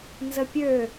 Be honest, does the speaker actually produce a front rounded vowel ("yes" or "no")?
yes